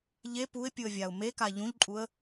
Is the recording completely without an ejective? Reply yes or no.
no